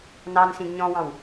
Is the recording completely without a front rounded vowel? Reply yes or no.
yes